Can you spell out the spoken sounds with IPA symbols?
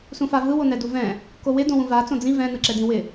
s ũ f a v ɯ w o n ɛ d u v ɛ̃ | k o w ɪ d õ w ũ v a t͡s õ d͡z ĩ v ɛ̃ n ɯ ǁ ɛ d ĩ w ɪ

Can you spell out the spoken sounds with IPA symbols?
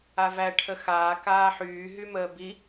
a v æ ʈʰ ə x aː k aː ħ yː ɦ y m əː b i

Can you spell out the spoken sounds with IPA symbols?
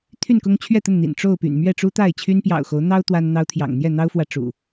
t̪ʰ y˥˨ n k ʊ˦ ŋ t͡ɕʰ ɥ ɛ˥˨ t̪ ə˥˨ n n̪ ḭ˨˩ n ʈ͡ʂ o˥˨ ʊ̯ p y̰˨˩ n m ɥ ɛ˥˨ ʈ͡ʂ u˦ t̪ a˥˨ ɪ̯ t͡ɕʰ y˦ n p j ɑ̰˨˩ ʊ̯ x o˨˦ ʊ̯ n̪ ɑ˦ ʊ̯ t̪ w a˦ n n̪ ɑ˦ ʊ̯ t̪ʰ j ɑ̰˨˩ ŋ n̪ j ɛ˥˨ n̪ ɑ˦ ʊ̯ f w ä˨ ʈ͡ʂ ṵ˨˩

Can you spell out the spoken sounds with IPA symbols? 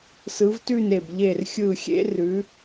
s ɯ˨˦ v t ʉ˦˨ n e˦˨ b ʎ e˦˨ r xʲ ɯ˦˨ xʲ ḛ˥ r ʉ˨˦

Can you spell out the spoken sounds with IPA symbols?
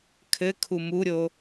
kʰ ɘ kʰ u m u ɾʲ o

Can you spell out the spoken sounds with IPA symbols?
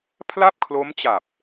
pʰ l a˥˩ p̚ kʰ l o˦˥ m t͡ɕ a˨˩ p̚

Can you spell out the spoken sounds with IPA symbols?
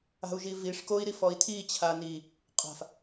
a̤ u̯ ʒ i v i ʂ k o i̯ ɾ i f ɔ i̯ tʰ i t͡ɕʰ a n i | qʼ a̤ f

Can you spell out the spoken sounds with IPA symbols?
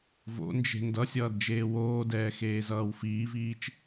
v o̰ n d͡ʒ e̤ n d ʌ sʲ ʌː d d͡ʒ eː w oː d ɛː x eː z ʌː w f iː v iː t͡ʃ

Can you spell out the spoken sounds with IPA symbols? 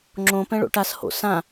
ŋ͡ǁ õ p ɛ̃ ɭ o̰ ʈ a s h o̰ s ã

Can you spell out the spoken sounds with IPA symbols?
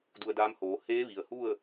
d u˧ ə̯ d aː˧˥ m h oː˩˧ h eː˧˥ ʋ i˩ ə̯ h u˥˨ ə̯

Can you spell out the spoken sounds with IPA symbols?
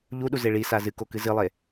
ʎ u ɗ u z e ɭ i s a z ɨ k o k ɨ z ɨ lˠ e

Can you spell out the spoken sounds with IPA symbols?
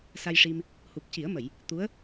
s a˧ j ʂ i˧ m | h u˨˩ p̚ c i˨˩˦ ə̯ m ə˨˩˨ j | t̪ u˧˥ ə̯

